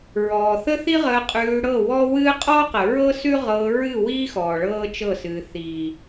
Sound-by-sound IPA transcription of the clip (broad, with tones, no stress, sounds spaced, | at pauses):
ɹ ɔː˨ θ ə˦ θ i˦ ʁ əː˧ qʼ ʉː˧ ɽ ɤ˦˨ w ɔ˦ w ɨː˦ qʼ ɔː˦ q ə˨ ɹ ɤ˦ s ʉ˦ ʁ ɤː˧ ɹ ɨ˦˨ w iː˦ x ɔː˨ ɭ ɤː˦ t͡ʃ ɤ˦˨ s ɨː˨ θ iː˨